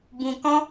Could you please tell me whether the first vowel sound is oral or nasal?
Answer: nasal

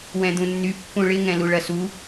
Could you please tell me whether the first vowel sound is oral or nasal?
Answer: nasal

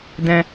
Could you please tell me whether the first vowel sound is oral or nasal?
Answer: nasal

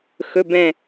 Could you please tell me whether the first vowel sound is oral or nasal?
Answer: oral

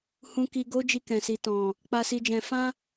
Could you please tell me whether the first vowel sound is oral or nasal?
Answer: nasal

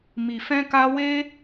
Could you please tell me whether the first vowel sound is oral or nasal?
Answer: oral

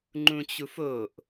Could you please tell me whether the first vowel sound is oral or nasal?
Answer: nasal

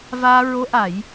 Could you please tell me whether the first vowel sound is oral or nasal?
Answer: oral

